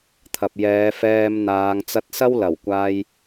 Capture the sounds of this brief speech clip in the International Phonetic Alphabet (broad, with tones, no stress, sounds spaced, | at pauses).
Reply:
t̪ʰ ɐ˨ p̚ j ɛː˨˧ f ɛː˧ m n̪ aː˨˧ ŋ t͡s ɐ˧ t̚ s ɐ˥ w l ɐ˨˩ w kʷ aː˧ j